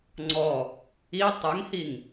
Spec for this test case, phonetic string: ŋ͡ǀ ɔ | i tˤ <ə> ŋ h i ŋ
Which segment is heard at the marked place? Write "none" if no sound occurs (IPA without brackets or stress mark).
ə